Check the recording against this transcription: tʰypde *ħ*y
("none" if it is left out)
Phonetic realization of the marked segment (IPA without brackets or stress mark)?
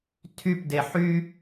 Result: ħ